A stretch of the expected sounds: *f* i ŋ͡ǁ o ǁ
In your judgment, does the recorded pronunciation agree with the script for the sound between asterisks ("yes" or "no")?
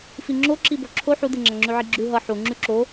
yes